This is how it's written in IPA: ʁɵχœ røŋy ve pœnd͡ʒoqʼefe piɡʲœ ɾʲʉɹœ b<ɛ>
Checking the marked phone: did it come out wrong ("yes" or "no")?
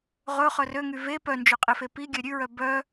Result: yes